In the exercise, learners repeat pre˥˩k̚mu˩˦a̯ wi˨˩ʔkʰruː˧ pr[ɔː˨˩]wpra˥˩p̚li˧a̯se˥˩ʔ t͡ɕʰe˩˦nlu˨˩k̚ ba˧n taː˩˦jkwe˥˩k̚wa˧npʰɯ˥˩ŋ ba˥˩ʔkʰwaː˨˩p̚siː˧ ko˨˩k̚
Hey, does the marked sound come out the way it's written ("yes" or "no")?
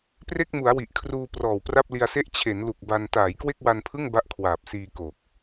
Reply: yes